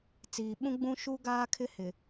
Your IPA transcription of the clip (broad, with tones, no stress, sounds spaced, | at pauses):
t͡s iː˨ ɓ ũ˦ ɡ͡b ũ˦ ʃ u˦ ɡ aː˦ kʰ ɪ˦ h ɪ˨